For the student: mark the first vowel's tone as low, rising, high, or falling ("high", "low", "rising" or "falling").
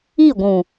falling